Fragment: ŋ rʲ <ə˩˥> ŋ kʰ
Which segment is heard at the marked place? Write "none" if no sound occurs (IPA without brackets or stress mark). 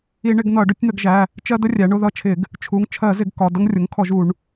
ʊ˩˥